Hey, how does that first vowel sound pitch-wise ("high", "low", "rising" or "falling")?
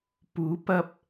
rising